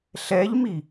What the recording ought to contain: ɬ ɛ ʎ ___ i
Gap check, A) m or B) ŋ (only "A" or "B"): A